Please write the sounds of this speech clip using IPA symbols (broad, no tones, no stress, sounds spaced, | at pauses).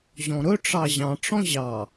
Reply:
ʑ ɔ̃ ɾ ɵ ʈ͡ʂ ɑ ʑ ɑ̃ ʈ͡ʂ ɔ̃ ʑ ɑ